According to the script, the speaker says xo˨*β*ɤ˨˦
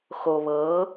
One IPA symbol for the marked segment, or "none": β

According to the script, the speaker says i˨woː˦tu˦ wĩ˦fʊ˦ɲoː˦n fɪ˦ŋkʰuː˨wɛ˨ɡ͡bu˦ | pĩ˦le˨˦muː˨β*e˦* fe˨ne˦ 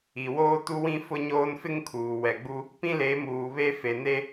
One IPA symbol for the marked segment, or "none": e˦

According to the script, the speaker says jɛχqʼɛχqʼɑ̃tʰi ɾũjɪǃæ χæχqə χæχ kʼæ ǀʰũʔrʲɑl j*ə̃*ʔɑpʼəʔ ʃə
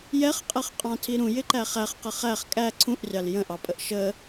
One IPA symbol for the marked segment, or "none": ə̃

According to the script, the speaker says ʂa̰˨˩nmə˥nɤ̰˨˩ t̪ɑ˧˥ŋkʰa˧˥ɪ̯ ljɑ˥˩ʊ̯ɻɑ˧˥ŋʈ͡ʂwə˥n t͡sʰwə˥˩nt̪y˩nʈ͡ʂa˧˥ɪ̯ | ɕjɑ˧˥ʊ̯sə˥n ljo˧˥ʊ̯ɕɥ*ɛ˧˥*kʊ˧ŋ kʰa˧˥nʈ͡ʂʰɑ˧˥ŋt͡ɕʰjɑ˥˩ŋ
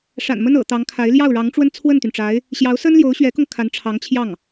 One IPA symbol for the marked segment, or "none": ɛ˧˥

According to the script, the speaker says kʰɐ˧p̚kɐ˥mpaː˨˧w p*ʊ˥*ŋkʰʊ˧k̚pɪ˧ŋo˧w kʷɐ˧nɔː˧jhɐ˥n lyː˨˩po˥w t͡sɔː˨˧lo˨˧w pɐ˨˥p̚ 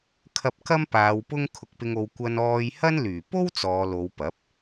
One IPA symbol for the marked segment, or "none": ʊ˥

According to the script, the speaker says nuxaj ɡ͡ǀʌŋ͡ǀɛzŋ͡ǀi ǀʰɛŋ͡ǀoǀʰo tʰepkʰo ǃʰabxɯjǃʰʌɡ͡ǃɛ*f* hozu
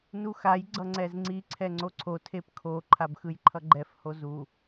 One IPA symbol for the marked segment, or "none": f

